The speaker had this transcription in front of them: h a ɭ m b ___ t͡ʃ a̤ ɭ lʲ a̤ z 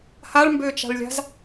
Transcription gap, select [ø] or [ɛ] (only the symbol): ø